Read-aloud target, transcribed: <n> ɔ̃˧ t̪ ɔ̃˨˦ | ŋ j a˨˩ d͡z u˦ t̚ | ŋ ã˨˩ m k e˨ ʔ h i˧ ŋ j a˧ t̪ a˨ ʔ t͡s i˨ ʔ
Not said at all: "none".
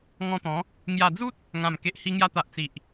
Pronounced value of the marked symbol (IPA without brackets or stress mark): ŋ